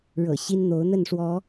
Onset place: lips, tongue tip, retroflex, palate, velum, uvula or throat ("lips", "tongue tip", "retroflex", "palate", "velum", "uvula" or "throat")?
retroflex